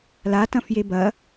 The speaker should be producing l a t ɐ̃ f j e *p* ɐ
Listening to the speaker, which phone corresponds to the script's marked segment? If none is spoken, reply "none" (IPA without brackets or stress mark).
b